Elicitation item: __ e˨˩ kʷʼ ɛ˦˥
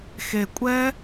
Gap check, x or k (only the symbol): x